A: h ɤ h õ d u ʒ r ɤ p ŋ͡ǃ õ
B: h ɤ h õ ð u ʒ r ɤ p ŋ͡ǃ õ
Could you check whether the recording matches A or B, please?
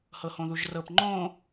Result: B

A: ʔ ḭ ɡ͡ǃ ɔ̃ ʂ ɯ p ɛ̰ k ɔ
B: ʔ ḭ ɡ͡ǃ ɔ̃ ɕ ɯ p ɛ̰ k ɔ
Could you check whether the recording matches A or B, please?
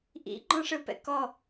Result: A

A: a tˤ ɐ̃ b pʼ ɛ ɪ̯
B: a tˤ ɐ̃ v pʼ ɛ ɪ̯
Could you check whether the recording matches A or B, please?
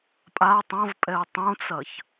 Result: B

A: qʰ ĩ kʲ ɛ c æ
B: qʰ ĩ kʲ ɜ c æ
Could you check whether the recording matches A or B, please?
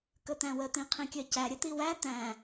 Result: B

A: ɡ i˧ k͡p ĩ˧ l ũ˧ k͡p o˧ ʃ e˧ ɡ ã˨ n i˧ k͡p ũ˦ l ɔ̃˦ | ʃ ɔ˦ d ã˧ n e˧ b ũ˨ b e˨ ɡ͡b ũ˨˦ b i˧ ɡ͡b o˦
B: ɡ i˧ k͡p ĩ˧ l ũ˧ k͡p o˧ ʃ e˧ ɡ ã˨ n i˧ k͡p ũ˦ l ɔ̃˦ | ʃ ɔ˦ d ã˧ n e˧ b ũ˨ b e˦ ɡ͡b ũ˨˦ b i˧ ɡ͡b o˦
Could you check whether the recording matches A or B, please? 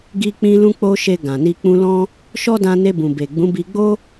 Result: A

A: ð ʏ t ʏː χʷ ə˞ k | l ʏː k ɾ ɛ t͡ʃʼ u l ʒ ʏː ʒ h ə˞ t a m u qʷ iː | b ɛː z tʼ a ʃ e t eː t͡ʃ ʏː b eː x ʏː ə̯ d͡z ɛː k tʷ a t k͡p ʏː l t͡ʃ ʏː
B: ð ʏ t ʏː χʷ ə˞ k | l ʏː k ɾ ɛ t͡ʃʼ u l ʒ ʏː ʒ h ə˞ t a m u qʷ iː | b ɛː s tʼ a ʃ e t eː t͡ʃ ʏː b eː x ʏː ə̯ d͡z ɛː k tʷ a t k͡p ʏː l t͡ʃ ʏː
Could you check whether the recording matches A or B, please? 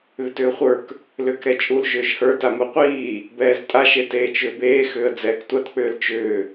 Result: A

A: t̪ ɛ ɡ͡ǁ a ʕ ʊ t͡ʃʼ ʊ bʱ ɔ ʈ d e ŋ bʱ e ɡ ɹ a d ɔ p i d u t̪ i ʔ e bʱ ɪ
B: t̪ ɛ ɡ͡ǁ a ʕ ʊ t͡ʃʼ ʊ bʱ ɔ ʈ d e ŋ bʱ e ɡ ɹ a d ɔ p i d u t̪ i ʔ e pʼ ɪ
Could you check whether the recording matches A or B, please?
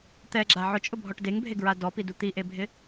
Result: A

